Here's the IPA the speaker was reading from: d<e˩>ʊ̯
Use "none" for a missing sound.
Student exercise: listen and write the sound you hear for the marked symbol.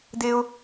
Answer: e˥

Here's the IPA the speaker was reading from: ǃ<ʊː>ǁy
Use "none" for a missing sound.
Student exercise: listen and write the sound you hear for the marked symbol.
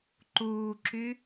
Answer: uː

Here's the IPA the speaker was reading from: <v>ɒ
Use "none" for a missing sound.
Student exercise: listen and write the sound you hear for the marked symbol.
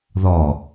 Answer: ð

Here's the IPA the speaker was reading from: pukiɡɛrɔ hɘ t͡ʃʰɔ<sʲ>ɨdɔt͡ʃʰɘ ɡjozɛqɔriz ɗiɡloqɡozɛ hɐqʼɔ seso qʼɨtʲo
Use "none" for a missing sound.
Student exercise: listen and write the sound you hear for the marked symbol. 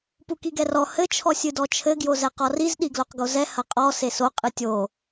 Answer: sʲ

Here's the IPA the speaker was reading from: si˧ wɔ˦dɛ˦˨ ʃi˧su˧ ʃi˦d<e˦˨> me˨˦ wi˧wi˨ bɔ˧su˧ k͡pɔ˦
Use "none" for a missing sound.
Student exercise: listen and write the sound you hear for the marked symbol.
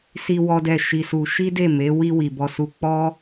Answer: e˦˨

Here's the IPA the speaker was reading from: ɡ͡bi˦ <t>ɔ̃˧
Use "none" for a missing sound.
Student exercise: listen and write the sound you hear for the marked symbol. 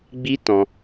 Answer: t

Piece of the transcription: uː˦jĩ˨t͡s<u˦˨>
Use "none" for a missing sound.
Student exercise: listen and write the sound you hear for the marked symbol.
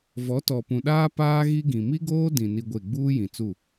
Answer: u˦˨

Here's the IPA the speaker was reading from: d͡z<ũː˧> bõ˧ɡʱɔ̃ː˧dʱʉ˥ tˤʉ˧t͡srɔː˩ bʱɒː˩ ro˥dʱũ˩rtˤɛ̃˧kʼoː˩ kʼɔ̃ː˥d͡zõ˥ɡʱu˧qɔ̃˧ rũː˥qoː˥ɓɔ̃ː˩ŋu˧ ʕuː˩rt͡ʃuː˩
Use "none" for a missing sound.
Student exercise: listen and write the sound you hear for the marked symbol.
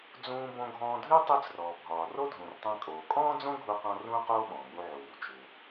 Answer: ũː˧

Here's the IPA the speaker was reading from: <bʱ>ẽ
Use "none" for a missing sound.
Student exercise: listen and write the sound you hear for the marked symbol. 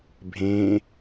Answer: bʱ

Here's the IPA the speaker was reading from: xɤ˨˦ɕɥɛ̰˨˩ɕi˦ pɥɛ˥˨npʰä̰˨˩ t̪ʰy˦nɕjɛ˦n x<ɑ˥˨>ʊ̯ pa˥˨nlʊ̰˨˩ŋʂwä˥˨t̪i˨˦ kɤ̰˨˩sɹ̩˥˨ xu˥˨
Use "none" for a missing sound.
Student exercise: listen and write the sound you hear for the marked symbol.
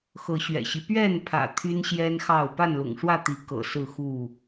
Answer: ɑ˥˨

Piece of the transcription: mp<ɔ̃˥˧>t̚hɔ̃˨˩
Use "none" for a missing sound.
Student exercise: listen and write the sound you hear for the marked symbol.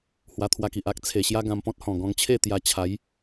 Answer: ɔ̃˦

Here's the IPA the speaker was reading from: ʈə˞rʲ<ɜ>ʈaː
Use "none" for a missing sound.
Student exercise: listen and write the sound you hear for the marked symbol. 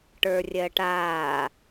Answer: ɜ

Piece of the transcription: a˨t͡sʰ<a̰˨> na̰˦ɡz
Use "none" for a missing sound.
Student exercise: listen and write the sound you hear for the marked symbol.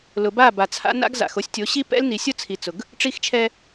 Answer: a̰˦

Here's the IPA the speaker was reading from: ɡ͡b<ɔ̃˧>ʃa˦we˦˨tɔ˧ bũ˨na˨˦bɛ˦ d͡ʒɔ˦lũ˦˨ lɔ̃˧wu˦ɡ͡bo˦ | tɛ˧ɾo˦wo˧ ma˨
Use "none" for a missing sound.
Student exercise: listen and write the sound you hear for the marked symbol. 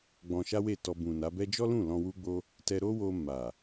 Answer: ɔ̃˧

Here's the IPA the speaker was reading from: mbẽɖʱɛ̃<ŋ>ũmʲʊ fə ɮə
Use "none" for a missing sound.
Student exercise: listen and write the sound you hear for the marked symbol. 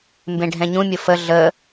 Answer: ɲ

